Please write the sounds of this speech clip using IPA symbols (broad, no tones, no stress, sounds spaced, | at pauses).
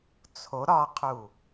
t͡sʰ o ɾ ɒ qʰ u